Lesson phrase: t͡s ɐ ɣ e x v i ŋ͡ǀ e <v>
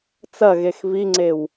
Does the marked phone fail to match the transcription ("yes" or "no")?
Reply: yes